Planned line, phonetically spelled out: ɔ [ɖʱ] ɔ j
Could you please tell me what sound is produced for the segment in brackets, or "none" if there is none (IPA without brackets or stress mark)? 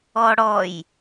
ɽ